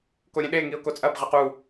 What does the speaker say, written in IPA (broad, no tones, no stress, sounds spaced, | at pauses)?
k o ɾʲ ẽ ɗ e ŋ i ʊ̯ k o t͡sʼ ɐ b ʁ ɘ q u